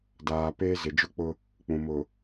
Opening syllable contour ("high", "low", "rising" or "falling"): low